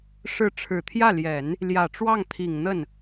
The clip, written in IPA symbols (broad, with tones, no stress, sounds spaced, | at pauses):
ʂ ɻ̩˧˥ ʈ͡ʂʰ ɻ̩˨˩ t̪ʰ j ä˥˩ l j ɛ˨˩˦ n | l j ä˨˩ ʈ͡ʂ w ɑ˥˩ ŋ t̪ʰ i˨˩ ŋ n̪ ə˥˩ n